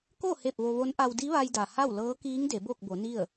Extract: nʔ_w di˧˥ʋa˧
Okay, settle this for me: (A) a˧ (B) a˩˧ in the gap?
A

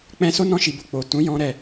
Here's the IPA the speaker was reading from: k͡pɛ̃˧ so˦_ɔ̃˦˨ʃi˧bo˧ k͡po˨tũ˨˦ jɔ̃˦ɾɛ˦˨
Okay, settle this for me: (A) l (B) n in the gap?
B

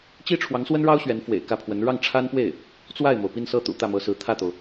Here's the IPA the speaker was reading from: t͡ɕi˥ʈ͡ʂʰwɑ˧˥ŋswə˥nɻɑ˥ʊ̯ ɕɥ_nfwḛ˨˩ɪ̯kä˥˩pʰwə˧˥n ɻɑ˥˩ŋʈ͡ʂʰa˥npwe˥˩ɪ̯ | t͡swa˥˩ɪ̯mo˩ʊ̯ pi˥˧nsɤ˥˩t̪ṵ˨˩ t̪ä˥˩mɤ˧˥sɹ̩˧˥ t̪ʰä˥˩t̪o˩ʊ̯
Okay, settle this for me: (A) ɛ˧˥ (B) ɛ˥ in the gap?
A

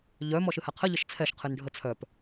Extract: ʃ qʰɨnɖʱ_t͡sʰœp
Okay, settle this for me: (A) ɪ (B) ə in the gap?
B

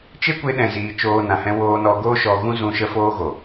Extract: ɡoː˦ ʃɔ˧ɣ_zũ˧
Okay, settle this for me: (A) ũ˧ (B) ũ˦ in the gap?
B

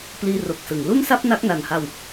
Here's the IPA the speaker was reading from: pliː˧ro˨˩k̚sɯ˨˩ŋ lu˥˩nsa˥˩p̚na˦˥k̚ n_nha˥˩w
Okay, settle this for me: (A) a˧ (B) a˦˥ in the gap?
A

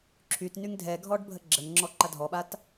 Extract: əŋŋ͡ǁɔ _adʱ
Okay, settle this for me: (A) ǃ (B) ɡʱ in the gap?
A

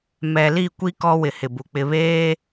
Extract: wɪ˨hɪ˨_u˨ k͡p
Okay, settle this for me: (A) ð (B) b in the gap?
B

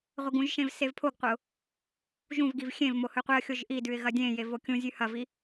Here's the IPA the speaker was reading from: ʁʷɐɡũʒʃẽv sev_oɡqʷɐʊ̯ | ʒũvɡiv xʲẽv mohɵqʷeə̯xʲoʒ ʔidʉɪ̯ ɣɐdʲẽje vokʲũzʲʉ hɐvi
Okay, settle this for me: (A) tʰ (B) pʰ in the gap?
B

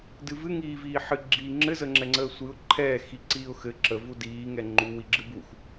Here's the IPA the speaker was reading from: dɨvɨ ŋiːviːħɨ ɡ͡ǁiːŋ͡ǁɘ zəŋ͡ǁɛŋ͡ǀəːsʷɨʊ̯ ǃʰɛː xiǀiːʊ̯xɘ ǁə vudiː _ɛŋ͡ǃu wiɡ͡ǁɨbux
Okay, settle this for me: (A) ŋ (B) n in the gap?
A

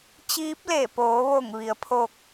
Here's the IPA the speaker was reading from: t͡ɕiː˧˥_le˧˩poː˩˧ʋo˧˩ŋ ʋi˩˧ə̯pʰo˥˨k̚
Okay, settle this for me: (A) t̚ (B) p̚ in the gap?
B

